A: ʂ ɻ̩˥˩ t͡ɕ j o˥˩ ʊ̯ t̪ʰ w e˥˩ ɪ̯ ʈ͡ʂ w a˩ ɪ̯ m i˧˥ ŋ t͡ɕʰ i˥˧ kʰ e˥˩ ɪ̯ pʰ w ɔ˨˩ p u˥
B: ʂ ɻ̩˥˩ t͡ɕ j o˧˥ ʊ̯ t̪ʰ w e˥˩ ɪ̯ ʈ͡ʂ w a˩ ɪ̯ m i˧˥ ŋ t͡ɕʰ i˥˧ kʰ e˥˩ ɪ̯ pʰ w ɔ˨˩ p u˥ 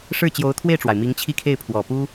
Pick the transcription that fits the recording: B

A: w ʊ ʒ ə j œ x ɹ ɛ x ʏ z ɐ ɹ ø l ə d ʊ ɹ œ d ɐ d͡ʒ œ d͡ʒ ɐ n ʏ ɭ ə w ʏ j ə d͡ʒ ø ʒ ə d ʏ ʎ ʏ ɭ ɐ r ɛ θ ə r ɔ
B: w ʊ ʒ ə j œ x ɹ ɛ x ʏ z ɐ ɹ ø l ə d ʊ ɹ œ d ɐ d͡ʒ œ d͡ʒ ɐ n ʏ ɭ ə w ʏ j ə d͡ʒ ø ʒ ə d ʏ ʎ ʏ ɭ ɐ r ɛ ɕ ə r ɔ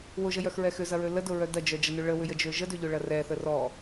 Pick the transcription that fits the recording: A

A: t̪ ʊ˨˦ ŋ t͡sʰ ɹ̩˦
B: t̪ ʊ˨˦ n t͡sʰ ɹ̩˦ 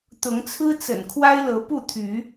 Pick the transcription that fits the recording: A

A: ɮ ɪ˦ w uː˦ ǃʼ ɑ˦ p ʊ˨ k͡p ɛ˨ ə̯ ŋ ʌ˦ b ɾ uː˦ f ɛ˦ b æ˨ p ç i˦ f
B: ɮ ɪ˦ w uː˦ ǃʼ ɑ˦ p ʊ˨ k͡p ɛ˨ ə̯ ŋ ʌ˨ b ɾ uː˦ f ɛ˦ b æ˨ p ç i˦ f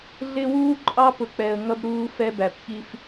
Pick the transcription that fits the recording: A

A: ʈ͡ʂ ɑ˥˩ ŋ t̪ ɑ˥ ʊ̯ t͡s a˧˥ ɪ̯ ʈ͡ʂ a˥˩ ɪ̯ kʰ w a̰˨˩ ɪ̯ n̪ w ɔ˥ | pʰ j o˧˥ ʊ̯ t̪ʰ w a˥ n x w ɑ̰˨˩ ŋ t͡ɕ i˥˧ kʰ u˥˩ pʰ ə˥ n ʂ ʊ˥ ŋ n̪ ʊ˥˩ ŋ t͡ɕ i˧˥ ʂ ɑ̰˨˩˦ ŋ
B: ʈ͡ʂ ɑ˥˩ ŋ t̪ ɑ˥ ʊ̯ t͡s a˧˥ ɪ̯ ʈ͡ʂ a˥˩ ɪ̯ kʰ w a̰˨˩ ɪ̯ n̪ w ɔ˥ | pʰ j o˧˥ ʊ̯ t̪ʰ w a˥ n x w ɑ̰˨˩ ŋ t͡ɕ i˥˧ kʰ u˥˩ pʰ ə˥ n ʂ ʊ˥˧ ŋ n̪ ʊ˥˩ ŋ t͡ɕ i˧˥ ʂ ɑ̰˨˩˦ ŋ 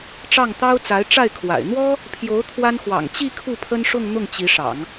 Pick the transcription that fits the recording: B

